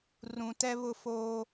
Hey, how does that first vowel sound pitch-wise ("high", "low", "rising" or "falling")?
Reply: low